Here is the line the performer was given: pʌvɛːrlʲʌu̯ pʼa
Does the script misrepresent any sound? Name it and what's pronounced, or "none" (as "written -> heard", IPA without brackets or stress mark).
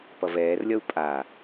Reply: none